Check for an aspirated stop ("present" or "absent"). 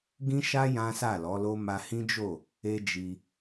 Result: absent